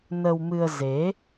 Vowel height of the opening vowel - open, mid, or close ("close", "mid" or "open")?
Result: mid